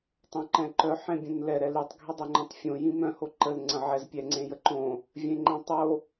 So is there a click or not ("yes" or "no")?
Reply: yes